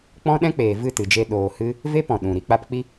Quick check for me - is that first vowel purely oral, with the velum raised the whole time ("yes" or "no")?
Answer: no